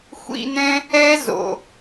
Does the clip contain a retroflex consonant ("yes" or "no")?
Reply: no